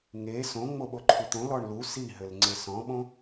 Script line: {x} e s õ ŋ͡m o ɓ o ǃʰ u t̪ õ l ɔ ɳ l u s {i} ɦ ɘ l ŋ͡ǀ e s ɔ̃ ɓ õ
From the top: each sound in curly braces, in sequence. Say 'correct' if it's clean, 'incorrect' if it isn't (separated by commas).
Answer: incorrect, correct